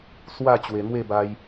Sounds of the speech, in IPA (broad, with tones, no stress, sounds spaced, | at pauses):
s w a˥˧ t͡ɕ w e˨˩ n̪ w e˥˧ b a˧ j